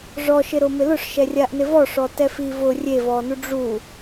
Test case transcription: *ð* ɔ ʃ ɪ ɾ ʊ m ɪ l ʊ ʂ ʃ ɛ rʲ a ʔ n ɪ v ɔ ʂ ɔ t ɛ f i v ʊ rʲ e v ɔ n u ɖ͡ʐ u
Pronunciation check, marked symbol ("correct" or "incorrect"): incorrect